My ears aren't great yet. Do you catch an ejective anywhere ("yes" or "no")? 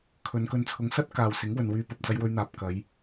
no